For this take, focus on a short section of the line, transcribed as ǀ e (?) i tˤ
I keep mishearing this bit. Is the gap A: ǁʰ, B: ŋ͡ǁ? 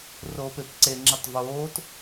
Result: B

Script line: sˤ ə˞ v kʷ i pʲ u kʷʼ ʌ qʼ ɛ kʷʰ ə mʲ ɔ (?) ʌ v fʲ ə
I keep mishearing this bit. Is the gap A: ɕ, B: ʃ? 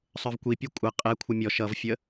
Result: B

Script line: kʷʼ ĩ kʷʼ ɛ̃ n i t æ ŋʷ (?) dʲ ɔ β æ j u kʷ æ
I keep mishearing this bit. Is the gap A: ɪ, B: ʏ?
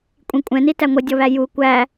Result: A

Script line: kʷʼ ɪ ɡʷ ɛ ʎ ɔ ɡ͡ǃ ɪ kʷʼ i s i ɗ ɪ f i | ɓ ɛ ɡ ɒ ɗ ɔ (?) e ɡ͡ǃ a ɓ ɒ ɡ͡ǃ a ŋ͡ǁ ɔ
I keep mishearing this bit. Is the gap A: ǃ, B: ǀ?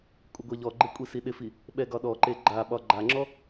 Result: A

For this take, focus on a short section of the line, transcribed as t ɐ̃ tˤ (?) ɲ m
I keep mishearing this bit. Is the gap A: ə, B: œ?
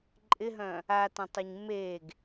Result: A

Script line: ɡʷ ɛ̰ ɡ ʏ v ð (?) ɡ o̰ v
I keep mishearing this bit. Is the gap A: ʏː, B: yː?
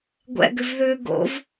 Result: A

